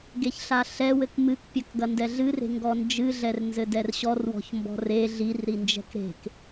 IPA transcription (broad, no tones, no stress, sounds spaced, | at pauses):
ɡ e ç ɬ a ɬ ɛ w ɘ k m ɨ k pʲ ɐ k ɡ ɐ n d ɛ ɮ ɨ r e̤ ŋ ɡ ɔ n d͡ʒ ɨ ɮ ɛ r n z ɘ d ɛ r ɕ ɔ r w ɔ̤ ç m b ɔ̤ r e ɮ i r ɾ i n d͡ʒ ɛ̤ k ɾ e̤ k